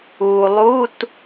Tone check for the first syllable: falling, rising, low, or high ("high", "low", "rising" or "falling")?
low